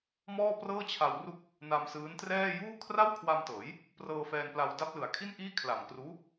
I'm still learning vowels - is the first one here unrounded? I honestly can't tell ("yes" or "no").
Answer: no